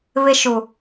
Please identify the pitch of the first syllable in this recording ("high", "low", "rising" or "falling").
high